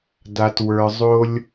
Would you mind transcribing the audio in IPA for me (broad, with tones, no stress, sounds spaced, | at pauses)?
d a˩ t w ə˞˩ zˤ o˧ lʲ